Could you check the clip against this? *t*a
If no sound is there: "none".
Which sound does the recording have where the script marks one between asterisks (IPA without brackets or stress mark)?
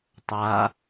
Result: tˤ